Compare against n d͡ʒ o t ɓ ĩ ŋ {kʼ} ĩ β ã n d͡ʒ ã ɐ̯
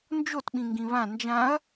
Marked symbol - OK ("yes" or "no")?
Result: no